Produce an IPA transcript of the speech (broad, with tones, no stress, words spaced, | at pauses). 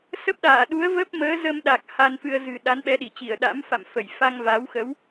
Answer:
sə˦˥p̚ɗaː˧˩ɗu˨˦ə̯ və˦˥p̚məː˨˦zə˧mɗa˨˩k̚ ha˧nfɨ˧ə̯ zɨ̤˨˩ ɗa˨˦nɓɛ˨˦ɗi˧˩t͡ɕi˧˩ə̯ ɗa̰˧˥mfa̰˧˨mfə˧˩j fa˧ŋva˨˦wxə˨˦w